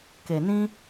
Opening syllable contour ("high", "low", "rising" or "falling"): low